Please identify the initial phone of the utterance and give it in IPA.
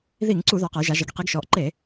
ð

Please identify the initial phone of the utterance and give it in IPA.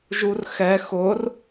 ʒ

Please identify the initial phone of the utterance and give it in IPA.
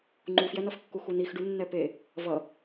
ŋ͡ǃ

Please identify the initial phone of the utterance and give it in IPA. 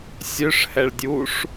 sʲ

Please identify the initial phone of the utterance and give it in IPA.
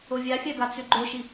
o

